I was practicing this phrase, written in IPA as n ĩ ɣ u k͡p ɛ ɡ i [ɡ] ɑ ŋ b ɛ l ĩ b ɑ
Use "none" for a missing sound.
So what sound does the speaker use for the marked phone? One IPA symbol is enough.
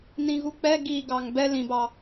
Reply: ɡ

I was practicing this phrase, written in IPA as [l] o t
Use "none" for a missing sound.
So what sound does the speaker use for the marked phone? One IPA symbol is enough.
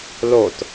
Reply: l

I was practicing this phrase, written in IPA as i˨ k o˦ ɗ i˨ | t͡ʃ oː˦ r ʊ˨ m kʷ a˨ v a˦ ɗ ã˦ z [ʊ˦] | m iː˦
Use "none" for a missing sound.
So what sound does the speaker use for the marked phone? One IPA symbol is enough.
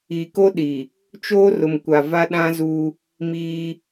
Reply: u˦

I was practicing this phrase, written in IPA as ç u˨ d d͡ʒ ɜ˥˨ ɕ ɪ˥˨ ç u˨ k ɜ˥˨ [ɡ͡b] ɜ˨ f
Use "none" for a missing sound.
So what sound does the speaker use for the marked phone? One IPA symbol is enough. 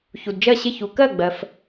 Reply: ɡ͡b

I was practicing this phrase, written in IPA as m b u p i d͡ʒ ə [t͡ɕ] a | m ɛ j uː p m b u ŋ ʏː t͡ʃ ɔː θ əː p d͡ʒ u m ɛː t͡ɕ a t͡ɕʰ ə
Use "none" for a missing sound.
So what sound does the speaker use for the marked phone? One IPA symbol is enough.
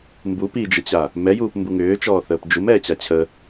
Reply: t͡ɕ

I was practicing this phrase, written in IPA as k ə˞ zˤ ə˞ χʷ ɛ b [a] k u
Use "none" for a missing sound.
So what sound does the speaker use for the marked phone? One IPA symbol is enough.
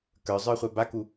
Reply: a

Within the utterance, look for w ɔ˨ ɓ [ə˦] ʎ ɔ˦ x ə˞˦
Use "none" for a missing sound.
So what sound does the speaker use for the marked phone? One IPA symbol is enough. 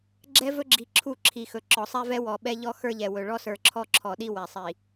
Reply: ɛ˦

